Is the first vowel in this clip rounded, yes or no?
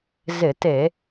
no